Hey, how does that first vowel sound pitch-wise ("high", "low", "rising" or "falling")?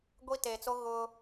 high